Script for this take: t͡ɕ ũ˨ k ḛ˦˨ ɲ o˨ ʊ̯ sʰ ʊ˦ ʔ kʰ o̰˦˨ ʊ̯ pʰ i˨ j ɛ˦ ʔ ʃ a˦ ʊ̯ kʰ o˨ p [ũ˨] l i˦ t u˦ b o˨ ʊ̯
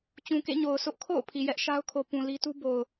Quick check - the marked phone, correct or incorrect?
correct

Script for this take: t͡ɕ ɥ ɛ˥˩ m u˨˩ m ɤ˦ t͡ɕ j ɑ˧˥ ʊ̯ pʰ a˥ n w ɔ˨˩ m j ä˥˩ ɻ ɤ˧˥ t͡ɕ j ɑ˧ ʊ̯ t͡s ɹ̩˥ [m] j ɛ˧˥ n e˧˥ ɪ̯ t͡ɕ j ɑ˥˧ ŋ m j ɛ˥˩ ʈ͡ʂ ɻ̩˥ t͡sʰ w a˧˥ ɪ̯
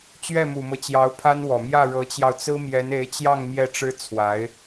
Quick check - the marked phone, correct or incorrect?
correct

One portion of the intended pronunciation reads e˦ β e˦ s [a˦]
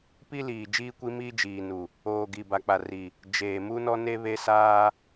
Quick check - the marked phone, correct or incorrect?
incorrect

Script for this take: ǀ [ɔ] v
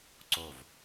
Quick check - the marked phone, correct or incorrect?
incorrect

